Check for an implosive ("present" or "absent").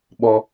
present